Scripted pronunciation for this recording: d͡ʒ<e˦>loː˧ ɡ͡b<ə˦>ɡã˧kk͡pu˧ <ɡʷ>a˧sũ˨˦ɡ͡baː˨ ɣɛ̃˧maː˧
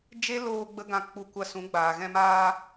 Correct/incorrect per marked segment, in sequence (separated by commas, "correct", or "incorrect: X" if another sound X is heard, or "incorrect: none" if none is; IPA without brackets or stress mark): correct, correct, incorrect: kʷ